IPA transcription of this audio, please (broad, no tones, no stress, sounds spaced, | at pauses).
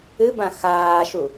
ɨ b ã x aː ʃ u